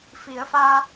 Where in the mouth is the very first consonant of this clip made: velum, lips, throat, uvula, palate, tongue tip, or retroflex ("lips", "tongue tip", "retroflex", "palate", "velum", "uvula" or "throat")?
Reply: lips